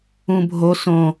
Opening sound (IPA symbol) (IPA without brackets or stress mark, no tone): ũ